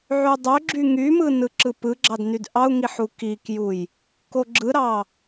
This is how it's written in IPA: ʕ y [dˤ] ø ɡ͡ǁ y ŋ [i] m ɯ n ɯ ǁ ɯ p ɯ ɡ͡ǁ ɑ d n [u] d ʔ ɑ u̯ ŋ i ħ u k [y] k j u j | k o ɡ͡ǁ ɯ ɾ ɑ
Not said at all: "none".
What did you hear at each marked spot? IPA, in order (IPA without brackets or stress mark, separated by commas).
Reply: dˤ, y, y, i